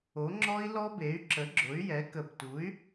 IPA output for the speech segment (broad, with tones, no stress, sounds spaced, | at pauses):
o˩˥ ŋ͡ǁ ɔ˦˥ i̯ l ɔ˦˥ b e˩˥ y̯ ǁ ə˩˥ ɡ͡ǁ ʊ˩˥ y̯ j ɛ˩˥ k ə˨˩ b t u˩˥ y̯